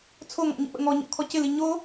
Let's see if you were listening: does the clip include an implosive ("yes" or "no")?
yes